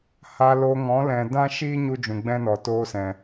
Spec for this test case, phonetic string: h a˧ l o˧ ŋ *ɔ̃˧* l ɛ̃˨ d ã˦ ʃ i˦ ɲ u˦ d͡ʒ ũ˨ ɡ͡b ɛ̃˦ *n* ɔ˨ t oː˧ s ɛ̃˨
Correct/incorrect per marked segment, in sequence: incorrect, correct

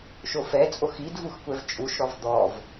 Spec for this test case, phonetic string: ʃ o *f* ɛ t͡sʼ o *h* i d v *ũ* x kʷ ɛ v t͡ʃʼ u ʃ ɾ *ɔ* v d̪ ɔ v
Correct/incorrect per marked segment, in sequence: correct, incorrect, incorrect, correct

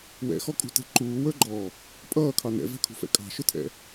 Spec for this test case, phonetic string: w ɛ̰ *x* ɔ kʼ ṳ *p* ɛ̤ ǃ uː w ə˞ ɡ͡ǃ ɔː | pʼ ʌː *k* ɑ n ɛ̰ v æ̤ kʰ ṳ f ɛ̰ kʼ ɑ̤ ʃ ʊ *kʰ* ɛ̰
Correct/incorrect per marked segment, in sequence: correct, incorrect, incorrect, incorrect

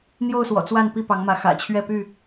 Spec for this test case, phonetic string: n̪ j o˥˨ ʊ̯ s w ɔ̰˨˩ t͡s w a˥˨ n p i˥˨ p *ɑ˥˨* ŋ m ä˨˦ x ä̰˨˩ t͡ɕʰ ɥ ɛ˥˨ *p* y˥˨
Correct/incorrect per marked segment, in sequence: incorrect, correct

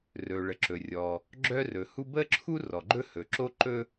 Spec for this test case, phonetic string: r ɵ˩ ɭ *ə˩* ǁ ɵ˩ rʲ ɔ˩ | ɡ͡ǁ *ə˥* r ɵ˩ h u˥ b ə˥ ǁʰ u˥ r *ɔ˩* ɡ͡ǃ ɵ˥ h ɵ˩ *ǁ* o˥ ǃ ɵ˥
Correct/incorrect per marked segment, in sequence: correct, incorrect, correct, correct

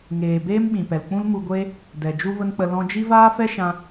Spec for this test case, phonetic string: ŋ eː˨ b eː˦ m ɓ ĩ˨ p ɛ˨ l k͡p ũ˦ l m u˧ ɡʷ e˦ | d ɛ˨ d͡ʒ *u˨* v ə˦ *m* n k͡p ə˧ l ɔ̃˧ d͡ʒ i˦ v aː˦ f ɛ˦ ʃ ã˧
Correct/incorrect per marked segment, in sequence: incorrect, incorrect

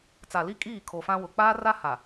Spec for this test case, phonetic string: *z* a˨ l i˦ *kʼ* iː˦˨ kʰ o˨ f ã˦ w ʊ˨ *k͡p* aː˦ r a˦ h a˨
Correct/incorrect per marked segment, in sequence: incorrect, correct, correct

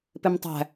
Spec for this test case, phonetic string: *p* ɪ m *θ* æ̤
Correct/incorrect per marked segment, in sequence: correct, incorrect

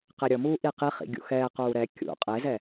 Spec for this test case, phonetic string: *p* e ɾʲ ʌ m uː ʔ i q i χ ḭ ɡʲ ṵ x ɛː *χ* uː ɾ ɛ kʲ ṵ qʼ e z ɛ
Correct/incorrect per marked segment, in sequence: incorrect, incorrect

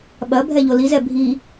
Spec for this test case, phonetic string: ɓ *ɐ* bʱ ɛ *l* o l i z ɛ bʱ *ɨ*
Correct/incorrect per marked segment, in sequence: correct, incorrect, incorrect

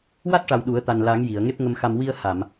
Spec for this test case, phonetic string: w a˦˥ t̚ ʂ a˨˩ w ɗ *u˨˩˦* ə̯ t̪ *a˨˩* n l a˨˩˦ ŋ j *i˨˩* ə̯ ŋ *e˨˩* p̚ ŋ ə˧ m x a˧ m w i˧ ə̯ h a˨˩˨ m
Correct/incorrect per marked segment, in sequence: correct, correct, incorrect, incorrect

